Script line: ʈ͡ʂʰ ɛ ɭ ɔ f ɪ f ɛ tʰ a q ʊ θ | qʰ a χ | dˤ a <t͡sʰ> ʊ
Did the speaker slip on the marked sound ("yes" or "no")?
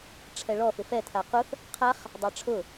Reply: yes